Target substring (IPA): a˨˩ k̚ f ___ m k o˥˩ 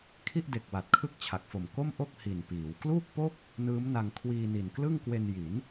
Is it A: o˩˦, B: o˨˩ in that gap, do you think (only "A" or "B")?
B